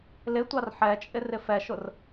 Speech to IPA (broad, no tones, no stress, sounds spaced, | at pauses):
l ɪ tʷ ɑ r ħ ɛ t͡ʃʼ ɪ r ɪ f ɛ ʃ ʊ r